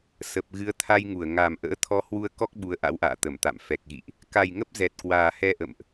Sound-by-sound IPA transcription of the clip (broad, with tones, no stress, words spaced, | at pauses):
sə˨˩p̚ ɣɨ˨˦ə̯t̪ʰa˧jŋu˧˩ə̯ ŋa˨˩m ʔə̰ː˧˥ t̪ʰɔ˨˦hwu˧ə̯kɔ˦˥k̚ ɓu˨˦ə̯ʔa̰˧˥wʔa̰ː˧˨ t̪ə˧˩mt̪a̰˧˨m fɛ˨˩k̚ɣḭ˧˨ʔ | ka˨˩jŋə˦˥p̚ zɛ˨˩t̚kwaː˨˩ hɛ˧ʔə̰˧˨mʔ